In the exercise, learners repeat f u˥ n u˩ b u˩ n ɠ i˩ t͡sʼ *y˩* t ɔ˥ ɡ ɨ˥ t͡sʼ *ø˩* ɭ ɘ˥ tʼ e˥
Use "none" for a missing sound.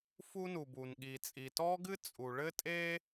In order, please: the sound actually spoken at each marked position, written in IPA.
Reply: i˩, u˩

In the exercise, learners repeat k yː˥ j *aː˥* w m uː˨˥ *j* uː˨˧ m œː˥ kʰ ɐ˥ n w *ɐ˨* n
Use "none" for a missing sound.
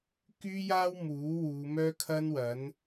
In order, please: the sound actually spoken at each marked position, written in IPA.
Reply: aː˥, w, ɐ˨˥

